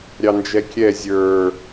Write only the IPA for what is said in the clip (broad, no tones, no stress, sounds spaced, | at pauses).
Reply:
ɾʲ ɑ n d͡ʒ ɛ kʲ ɛ zʲ ə˞